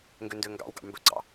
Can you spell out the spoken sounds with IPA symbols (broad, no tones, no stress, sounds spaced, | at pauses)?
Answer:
ŋ ɡ ø n d ø ŋ ɡ ɑ̰ w ɡ ɑ̰ m b ɵ ɡ͡ǀ ɑ̰